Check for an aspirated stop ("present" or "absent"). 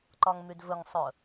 absent